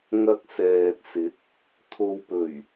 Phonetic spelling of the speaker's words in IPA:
ŋ ɐ˧ k̚ s ɛː˨ t̚ s ɪ˨˥ k̚ | t̪ʰ o˨ w p ɵ˨˩ ɥ

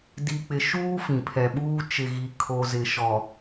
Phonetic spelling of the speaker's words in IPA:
d i˨ k͡p ɪ˨ ʃ uː˦ f ĩ˨ pʰ ɛ˨ ɓ uː˦ t͡ʃ ɪ˨ ɣ i˨ kʰ o˨ z ɪ˨ ʃ ɔ˨

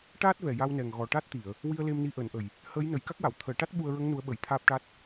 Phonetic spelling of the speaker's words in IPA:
ʈ aː˦˥ t̚ v ɛ˨˩ j a˧ w n ɛ˨˩ ŋ ɣ ɔ˨˩ ʈ a˦˥ t̚ t̪ i˨˩˨ ə̯ | w i˧ ə̯ l e˧ m n i˧ ʔ əː˨˩˦ n ʔ ə˨˩ j | h əː˧˥ j n ə˨˩˦ j k a˦˥ k̚ w a˨˩˨ w t̪ʰ əː˨˩˦ ʈ a˦˥ t̚ ɓ u˧ ə̯ ɹ ə˧˥ ŋ n u˧˥ ə̯ ɓ ə˨˩˦ j t̪ʰ aː˦˥ p̚ ʈ a˦˥ t̚

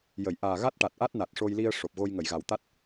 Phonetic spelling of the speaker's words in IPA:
j ə˨˩˨ j ʔ aː˨˩ ɣ a˦˥ t̚ ʈ a˨˩ t̚ ʔ a˦˥ t̚ n a˨˩ t̚ ʂ o˧ j l i˧ ə̯ ʂ o˨˩ p̚ ɣ o˧ j ŋ ə˨˩˨ j ɣ a˨˩ w t̪ a˦˥ t̚

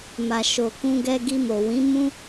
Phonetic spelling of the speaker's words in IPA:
m a˨ ʃ o˨ k ũ˧ ɡ ɛ˧ ɡ i˧ m o˨ w ĩ˨˦ m ũ˦

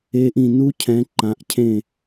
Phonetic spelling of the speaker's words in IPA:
e˦˥ ʔ ĩ˥˨ n u˦˥ cʰ ɛ̃˨˦ ǃ ã˨˦ ʔ cʰ ẽ˥˨

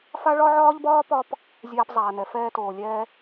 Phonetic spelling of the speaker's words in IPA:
f a˦ ɭ ɒ˦ ʕ ɒː˦ ʎ b ɒː˦ p ɒ˦ p | zʲ aː˧ p zˤ aː˨ n ɛ˨ f ɛː˧ t oː˨ lʲ ɛː˧

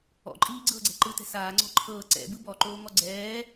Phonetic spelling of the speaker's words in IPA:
ɔ̰ ǃʼ iː ɡ͡ǀ ɤː ɡ͡ǀ ɛ̤ ǃ ɯ t ɛ̤ s aː ŋ͡ǀ ɔ̤ ǃʰ ɤː ǀ ɛ̰ b ɯ b ɔ ǃ oː ŋ ɔ ɡ͡ǀ ɛː

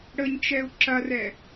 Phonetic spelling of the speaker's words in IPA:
ɽ ə ɲ t͡ʃ ɛ u̯ ǁ ɐ r ɛ

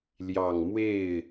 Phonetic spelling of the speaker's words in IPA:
l j ɑ˨˩ ŋ m w e˥˩ ɪ̯

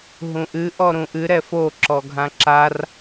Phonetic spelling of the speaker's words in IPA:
ɦ ũ ʔ ɨ ʔ ɔ ɾ ũ ʔ ɨ ɾ ɛ f o ǁ ɔ ɡʱ ã ǁ a r

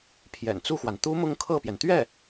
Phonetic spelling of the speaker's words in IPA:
pʰ j ɛ̰˨˩ n t͡s u˥˩ x w a˩ n t̪ u˥ m ʊ˥˧ ŋ kʰ ɤ˥˩ p j ɛ˩ n t̪ ɥ ɛ˥˩

